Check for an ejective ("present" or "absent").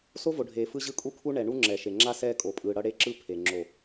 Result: present